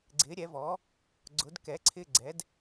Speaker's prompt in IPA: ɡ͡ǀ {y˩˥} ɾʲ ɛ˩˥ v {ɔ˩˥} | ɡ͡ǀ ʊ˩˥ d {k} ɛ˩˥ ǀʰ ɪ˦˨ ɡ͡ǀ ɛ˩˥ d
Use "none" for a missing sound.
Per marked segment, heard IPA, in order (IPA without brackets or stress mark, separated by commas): ɪ˩˥, ɔ˩˥, k